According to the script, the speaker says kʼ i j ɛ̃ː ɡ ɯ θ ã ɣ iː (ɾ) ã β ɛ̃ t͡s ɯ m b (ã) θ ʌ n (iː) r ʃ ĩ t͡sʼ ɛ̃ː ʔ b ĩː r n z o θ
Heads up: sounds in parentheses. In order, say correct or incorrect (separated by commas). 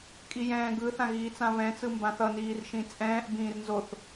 incorrect, correct, correct